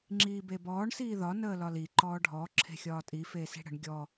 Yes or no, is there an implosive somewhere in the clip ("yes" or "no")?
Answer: no